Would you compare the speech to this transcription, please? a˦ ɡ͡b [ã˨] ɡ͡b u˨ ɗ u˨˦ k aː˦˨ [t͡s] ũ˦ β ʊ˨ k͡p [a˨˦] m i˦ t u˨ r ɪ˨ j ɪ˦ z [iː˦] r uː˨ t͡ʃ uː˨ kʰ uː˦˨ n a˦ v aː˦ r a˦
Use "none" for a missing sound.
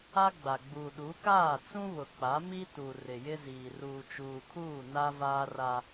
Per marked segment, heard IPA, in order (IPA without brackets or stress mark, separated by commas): a˨, t͡s, a˨˦, iː˨